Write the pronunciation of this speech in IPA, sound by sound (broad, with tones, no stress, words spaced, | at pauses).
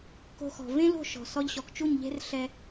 ko̤˧xɔ̤˨ vẽ˦lo̤˦˨ʃɔ̤˨ sɔ˧ʎɕɔ˨kt͡ʃu˦˨ɲʎe̤˦r ɬɛ˧